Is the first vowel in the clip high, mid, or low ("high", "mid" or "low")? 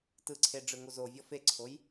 high